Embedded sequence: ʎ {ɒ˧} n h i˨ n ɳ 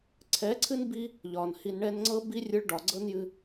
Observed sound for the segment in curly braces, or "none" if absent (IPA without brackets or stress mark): ɒ˨